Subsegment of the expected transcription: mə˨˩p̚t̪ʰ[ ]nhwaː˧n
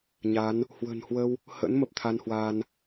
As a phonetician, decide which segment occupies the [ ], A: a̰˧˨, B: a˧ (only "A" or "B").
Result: B